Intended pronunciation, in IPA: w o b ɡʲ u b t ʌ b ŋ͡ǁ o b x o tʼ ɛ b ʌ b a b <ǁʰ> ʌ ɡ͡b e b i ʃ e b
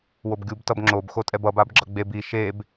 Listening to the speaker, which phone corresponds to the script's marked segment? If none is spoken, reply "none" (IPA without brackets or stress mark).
ɡ͡ǁ